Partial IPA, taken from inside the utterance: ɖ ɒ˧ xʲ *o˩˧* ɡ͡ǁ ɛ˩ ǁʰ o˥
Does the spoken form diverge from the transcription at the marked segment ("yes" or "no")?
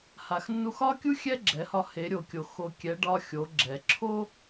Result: no